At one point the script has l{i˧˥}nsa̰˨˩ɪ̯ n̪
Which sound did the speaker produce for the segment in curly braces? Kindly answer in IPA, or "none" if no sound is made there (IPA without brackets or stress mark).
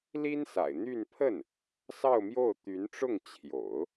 i˥